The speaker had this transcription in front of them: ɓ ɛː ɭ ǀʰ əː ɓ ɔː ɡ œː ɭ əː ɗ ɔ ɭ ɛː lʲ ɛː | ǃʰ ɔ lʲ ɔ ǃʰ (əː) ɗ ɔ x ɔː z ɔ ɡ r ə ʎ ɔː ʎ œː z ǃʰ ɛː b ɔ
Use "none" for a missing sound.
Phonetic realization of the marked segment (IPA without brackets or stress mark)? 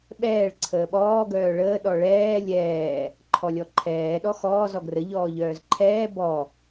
ɛː